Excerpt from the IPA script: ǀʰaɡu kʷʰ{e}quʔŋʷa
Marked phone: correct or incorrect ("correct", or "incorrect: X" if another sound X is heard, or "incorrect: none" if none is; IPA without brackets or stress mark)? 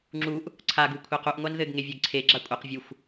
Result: correct